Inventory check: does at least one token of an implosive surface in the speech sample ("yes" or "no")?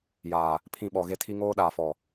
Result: yes